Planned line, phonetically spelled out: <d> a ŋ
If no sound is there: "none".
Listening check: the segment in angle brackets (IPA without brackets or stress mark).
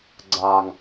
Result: ɡ͡ǀ